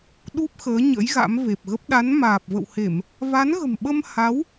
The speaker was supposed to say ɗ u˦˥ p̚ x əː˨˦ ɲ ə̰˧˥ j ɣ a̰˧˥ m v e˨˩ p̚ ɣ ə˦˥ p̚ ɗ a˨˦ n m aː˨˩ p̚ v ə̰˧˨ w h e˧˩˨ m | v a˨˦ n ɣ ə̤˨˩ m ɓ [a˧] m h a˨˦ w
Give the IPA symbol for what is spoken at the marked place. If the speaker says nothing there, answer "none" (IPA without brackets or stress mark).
ə˧